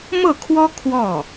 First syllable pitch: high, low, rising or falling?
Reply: falling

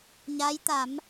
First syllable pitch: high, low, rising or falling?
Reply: rising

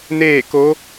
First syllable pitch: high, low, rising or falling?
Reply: falling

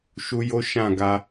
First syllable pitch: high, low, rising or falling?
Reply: high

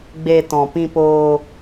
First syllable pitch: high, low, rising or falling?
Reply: low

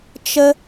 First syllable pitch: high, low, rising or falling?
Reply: high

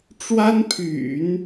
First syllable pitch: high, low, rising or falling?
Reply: high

